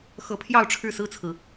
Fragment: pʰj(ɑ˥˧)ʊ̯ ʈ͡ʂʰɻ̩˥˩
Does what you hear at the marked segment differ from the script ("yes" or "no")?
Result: no